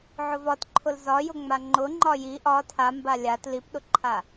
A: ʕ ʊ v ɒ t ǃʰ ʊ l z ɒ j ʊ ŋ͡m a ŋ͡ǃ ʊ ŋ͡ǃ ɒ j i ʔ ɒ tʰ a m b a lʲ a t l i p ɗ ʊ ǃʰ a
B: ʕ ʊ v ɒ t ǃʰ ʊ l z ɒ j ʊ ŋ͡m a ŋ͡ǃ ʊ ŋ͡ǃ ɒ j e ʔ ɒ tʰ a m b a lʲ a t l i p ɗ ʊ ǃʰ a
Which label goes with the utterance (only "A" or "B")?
A